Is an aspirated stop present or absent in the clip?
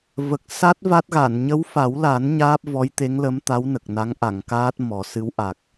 absent